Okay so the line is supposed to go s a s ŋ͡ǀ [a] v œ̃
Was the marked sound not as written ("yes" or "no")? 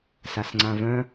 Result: yes